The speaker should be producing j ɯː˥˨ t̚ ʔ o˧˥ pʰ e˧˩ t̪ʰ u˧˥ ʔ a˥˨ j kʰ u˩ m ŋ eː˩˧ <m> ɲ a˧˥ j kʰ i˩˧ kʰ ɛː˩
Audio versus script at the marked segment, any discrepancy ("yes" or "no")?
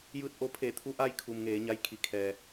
yes